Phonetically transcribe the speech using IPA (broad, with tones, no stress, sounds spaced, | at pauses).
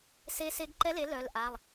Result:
s e˧˥ s e˧˥ ɡ ǃ ɛ˧˥ l e˩˥ l œ˩˧˩ l ʔ a˩˧˩ lˠ